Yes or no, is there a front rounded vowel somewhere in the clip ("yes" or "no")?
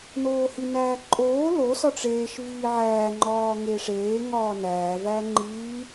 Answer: no